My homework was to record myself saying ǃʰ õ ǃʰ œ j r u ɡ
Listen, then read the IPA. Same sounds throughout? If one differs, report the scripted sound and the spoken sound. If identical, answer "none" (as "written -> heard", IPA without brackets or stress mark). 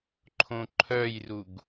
none